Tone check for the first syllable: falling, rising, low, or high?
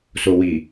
low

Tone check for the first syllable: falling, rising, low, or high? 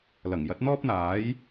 low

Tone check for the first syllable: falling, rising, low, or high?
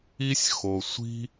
high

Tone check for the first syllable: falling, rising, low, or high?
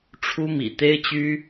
high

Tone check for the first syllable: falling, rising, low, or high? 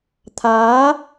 rising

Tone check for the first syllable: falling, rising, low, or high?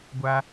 high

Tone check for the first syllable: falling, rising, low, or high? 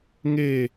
falling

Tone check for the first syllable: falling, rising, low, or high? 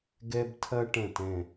high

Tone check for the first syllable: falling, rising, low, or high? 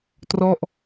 falling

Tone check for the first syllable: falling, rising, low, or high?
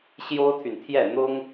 high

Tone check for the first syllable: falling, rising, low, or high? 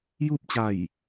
falling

